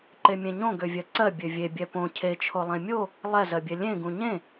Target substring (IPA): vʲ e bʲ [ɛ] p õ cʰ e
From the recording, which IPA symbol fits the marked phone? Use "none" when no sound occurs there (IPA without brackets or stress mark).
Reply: ɛ